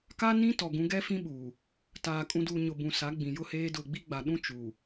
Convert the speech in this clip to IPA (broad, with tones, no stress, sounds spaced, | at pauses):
k a˦ n ĩ˦ t ɔ˨ ɡ ũ˨˦ ɡ ɛ˦ f ĩ˦ ɓ u˨ | t aː˨ kʼ ũ˨ d uː˨ ɲ ʊ˨ b ũ˨ s a˨˦ ɡ͡b ĩ˨ j ʊ˦ h eː˦ d ʊ˦˨ ɡ͡b i˦ ɡ͡b a˨ ɗ ũ˦ t͡ʃ u˨